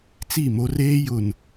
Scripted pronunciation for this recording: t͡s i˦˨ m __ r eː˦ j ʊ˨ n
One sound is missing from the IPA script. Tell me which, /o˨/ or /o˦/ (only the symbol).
o˦